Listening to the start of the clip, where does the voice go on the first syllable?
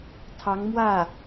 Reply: rising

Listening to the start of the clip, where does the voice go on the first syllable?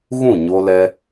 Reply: falling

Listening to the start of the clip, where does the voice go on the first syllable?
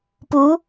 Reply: rising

